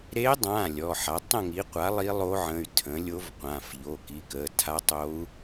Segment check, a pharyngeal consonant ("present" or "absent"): present